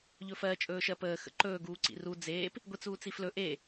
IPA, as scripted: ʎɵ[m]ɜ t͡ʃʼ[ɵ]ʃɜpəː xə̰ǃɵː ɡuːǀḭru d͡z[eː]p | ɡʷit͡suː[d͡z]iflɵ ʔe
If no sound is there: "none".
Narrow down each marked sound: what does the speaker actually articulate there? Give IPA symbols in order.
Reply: f, ɵː, eː, t͡s

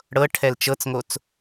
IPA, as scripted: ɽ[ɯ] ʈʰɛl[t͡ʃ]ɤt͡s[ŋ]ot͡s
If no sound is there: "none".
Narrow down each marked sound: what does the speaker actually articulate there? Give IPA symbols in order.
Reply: ɤ, t͡ʃ, ŋ

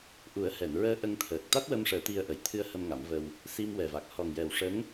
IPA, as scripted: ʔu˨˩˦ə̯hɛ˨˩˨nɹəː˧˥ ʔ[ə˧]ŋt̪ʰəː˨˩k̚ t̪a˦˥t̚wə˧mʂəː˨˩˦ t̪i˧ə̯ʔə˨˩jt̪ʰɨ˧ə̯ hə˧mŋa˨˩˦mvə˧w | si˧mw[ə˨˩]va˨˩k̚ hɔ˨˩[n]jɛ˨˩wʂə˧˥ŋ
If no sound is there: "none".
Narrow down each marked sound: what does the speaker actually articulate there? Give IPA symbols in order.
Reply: ə˧, ɛ˨˩, ŋ

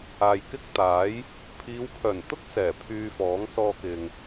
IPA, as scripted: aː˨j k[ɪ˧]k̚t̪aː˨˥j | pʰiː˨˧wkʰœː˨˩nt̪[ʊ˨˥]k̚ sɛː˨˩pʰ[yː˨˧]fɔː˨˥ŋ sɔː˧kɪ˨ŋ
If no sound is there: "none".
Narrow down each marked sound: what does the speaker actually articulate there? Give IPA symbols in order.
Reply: ɪ˥, ʊ˥, yː˧

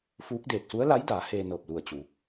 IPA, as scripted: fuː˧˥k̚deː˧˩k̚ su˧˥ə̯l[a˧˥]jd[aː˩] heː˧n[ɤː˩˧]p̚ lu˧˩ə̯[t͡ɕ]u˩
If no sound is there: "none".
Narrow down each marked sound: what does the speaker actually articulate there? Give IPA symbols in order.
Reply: a˧˥, aː˩˧, ɤː˧˩, t͡ɕ

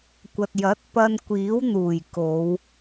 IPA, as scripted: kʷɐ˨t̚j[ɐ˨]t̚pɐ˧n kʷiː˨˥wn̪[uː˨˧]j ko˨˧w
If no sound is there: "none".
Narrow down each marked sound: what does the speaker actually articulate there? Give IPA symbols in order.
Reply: ɐ˨˥, uː˨˩

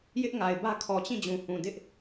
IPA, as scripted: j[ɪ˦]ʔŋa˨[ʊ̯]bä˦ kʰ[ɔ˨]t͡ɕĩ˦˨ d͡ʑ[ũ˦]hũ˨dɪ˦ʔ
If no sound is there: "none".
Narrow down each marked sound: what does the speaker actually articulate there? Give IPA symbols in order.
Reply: ɪ˦, ɪ̯, ɔ˨, ũ˨

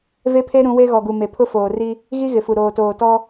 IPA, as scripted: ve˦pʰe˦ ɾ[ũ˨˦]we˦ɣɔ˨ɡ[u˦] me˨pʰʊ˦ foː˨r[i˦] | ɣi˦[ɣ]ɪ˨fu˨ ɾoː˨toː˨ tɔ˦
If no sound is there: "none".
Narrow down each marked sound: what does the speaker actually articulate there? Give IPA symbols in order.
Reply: ũ˨˦, u˨, i˦, ɣ

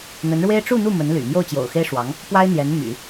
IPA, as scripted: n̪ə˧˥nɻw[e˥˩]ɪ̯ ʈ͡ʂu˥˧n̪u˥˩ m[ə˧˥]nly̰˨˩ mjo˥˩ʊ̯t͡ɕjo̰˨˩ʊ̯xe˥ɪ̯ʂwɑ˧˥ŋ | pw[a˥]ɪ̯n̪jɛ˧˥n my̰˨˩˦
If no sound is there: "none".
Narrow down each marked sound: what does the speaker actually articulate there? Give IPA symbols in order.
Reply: e˥, ə˧˥, a˥

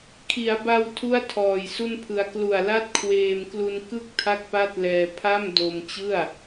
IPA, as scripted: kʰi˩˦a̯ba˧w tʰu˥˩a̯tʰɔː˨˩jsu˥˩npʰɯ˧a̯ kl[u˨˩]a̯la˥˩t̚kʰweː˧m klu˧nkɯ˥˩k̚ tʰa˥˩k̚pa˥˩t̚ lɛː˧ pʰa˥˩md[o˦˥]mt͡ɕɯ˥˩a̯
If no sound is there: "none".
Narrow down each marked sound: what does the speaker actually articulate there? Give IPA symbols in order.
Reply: u˨˩, o˧

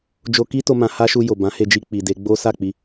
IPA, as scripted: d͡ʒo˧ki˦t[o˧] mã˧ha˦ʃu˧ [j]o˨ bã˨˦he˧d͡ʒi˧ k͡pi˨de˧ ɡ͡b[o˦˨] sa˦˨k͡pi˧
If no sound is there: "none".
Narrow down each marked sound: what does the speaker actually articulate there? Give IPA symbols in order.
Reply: o˧, j, o˦

